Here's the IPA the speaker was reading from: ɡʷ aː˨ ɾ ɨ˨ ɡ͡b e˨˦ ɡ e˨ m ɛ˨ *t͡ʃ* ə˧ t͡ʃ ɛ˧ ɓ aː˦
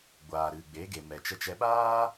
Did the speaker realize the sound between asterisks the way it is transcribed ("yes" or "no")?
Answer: yes